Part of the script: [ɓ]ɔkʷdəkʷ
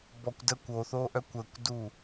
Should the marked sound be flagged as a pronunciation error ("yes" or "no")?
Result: yes